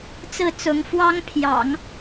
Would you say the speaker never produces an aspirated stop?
no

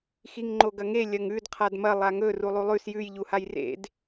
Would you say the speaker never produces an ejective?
yes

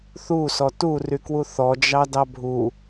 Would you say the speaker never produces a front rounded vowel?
no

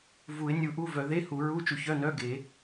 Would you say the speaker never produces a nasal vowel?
yes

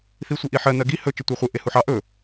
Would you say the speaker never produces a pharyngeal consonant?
no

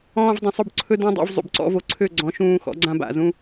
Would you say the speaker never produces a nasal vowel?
no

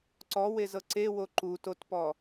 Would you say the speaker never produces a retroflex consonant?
yes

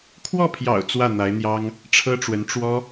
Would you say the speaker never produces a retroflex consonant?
no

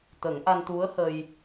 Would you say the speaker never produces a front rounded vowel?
yes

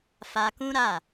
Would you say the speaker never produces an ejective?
yes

